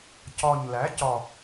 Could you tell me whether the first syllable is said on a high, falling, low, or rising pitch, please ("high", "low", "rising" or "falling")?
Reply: low